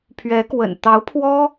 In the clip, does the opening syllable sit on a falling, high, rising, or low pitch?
rising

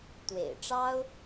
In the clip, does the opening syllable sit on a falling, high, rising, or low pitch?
low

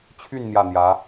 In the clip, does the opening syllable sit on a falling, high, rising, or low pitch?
falling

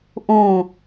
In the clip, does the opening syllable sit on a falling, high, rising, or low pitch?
falling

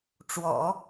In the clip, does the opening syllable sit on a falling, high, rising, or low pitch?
low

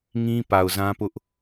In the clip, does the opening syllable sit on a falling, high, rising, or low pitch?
high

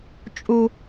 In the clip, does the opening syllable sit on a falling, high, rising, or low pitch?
high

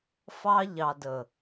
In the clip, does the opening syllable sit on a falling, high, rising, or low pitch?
high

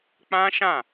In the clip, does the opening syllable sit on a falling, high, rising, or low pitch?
high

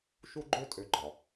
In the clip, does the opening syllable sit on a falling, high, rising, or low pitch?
high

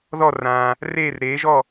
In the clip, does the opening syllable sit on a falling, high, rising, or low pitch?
falling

